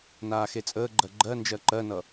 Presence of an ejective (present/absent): present